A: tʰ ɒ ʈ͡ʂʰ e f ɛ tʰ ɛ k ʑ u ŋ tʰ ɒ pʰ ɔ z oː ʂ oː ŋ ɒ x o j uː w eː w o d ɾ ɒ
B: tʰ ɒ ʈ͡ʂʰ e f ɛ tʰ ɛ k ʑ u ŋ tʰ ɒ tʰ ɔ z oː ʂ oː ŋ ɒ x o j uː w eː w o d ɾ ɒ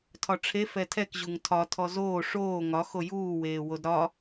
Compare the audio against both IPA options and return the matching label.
B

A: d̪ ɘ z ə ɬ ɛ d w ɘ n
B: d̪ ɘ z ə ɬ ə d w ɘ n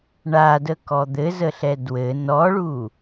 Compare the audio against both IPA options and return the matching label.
A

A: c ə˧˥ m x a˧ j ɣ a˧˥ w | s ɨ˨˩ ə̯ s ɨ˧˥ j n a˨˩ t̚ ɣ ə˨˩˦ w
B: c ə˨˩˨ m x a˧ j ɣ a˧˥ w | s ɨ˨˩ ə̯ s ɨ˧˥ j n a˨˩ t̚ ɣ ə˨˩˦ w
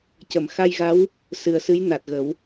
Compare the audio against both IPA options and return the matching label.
B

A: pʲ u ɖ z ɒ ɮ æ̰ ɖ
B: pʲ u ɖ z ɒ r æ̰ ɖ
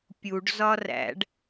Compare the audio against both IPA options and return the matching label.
B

